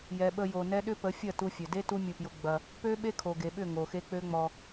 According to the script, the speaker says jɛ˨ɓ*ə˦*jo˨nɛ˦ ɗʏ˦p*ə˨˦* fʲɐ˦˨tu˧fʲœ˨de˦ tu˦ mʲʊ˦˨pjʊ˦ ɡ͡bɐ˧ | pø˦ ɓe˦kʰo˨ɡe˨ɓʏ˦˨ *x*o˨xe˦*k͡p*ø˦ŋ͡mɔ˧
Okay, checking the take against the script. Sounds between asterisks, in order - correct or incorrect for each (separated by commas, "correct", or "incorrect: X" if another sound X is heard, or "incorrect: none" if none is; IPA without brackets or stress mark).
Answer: incorrect: ə˧, correct, incorrect: ŋ, correct